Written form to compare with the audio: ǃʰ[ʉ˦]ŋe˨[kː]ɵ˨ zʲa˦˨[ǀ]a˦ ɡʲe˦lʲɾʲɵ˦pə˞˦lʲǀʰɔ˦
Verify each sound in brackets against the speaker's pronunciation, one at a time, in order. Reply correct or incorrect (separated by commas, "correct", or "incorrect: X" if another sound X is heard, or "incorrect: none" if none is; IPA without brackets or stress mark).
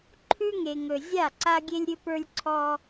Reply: correct, incorrect: ŋ, correct